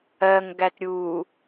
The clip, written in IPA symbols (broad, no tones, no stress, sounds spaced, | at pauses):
ɜ ŋ ɡ æ t ɾʲ uː